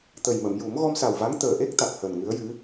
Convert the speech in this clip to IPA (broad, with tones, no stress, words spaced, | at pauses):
t̪ə˨˩jmə˨˩˨mju˨˩˦m ɣɔ˧msa˨˩wva˧˥ŋ t̪əː˨˩ʔe˦˥k̚ t̪a˨˩k̚həː˨˩nŋɨ˧˥ə̯jɨ˧˥